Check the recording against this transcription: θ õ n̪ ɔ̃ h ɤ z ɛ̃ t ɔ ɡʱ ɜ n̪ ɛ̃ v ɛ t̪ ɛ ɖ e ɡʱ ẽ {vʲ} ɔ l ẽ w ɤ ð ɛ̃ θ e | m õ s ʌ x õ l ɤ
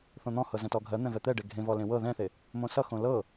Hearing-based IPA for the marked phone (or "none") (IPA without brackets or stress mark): v